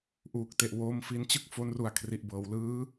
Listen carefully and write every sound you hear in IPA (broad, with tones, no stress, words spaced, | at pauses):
ʔuː˨˩k̚te˨˩ʔwoː˦˥m fi˧nt͡ɕɯ˥˩k̚ fo˦˥nru˨˩a̯ kʰri˨˩ʔbɤː˩˦w lɯː˦˥